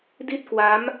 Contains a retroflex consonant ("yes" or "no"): no